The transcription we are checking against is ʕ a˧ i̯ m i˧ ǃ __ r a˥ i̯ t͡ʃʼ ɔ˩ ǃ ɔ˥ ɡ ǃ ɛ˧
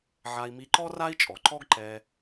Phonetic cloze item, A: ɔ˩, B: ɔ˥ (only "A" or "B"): B